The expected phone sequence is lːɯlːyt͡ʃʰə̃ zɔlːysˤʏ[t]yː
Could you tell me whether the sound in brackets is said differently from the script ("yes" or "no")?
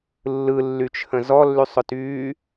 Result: no